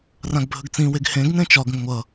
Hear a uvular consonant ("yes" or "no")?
no